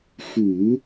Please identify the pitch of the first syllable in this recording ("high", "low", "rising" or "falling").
low